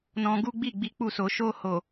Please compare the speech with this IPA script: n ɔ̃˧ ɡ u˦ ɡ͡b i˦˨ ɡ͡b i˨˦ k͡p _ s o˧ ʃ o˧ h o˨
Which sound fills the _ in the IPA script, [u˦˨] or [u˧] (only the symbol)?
u˦˨